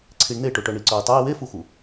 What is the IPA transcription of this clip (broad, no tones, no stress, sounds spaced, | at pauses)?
ǀʰ i ɳ n e ʈ ʊ ʈ œ ɳ i ǀ œ i̯ tˤ œ i̯ w e f u x u